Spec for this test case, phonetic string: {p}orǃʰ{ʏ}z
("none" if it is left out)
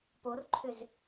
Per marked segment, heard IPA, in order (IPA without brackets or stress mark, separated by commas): p, ʏ